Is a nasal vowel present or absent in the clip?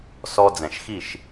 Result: present